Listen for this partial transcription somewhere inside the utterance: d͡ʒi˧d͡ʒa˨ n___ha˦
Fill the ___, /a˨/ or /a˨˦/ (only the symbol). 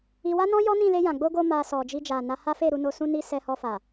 a˨˦